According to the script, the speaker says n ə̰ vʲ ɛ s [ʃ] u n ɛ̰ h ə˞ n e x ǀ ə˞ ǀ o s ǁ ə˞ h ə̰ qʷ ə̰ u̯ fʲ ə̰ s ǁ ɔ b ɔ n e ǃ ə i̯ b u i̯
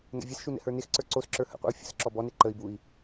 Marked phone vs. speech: correct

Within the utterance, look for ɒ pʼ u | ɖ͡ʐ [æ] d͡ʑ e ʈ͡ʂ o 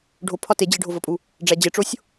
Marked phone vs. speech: correct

